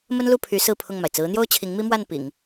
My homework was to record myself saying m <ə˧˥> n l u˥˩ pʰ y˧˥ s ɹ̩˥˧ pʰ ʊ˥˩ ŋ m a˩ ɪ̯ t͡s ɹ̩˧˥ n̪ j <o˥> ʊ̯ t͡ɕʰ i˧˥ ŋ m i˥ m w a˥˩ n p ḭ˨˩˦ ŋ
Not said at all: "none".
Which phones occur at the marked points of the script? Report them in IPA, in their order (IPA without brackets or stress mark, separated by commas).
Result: ə˥, o˥